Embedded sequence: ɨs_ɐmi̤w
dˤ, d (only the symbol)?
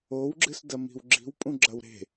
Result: d